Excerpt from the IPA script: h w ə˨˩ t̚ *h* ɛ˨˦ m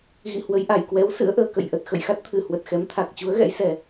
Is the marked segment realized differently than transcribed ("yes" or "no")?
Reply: yes